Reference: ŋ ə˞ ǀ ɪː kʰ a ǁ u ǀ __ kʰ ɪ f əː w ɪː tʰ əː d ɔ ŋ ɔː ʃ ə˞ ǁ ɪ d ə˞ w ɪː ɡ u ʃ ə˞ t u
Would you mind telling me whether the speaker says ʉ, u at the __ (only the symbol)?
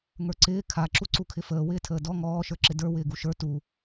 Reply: u